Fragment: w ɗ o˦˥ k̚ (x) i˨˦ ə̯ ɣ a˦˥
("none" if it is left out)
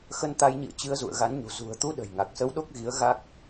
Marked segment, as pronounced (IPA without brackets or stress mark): ɣ